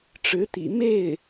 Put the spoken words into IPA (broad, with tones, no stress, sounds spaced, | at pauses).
ʈ͡ʂ ɻ̩˧˥ t̪ ḭ˨˩ m e˥˩ ɪ̯